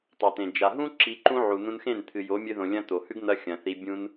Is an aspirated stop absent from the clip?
no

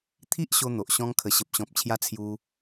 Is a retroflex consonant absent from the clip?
yes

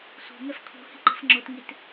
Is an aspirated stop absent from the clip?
no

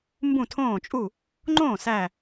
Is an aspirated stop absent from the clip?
no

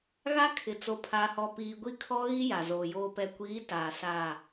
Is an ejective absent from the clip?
yes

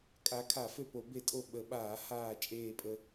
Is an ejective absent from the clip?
no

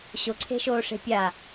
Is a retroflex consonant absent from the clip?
no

